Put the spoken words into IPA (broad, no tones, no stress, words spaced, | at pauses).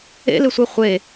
ḛlɪsʷe χʷe